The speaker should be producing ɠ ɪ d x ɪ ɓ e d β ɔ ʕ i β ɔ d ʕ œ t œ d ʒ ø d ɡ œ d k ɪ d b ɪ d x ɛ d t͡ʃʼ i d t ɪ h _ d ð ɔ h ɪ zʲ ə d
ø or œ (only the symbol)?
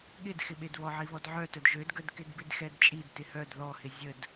œ